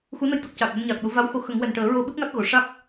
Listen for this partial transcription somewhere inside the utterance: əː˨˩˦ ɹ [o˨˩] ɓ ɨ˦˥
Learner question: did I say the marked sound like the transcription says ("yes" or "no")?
no